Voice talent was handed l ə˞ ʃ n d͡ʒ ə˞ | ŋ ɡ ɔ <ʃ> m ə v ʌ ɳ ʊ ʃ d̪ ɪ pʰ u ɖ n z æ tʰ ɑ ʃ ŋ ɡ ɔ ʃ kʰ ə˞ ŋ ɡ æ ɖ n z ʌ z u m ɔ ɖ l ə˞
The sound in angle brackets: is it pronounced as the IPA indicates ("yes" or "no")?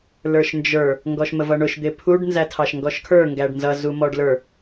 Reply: yes